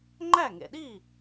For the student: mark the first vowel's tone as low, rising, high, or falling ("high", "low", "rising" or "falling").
falling